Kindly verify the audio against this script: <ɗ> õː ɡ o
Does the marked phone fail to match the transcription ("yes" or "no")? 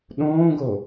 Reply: no